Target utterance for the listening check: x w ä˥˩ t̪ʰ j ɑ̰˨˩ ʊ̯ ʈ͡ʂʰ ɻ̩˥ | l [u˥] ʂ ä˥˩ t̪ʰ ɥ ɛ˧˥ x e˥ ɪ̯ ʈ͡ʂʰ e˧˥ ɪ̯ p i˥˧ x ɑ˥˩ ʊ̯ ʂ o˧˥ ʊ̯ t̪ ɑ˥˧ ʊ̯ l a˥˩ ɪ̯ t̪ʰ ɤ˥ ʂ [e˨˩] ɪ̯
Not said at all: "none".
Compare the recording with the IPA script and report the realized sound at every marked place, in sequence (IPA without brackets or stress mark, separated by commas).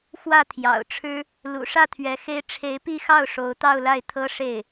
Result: ṵ˨˩, e˥˩